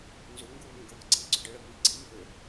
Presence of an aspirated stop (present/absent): present